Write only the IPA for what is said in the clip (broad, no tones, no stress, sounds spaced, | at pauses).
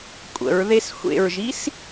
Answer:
kʷʼ ə̰ ɹ ð e s xʷ ḛ ɹ ʒ i s